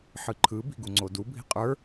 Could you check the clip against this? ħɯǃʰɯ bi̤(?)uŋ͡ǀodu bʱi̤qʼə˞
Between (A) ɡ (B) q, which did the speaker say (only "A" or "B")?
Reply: A